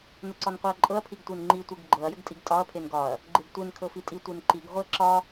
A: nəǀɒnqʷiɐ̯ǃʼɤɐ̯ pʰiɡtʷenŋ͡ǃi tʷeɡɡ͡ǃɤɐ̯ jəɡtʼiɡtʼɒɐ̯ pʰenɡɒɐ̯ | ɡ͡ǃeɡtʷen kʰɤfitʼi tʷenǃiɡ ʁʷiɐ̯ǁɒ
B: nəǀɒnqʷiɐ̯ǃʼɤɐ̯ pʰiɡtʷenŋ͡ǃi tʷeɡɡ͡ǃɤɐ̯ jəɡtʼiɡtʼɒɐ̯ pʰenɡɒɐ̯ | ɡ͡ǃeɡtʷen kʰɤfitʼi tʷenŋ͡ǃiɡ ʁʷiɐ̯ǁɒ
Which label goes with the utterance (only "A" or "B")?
A